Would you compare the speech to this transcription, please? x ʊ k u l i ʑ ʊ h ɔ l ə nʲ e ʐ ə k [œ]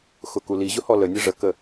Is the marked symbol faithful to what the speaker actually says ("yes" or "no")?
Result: no